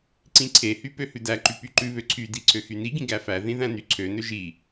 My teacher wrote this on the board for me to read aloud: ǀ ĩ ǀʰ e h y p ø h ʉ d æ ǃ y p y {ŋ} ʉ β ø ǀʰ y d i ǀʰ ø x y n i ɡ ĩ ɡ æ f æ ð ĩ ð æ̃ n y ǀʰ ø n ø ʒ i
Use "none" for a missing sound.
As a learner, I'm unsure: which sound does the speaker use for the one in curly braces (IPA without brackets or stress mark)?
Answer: ǃ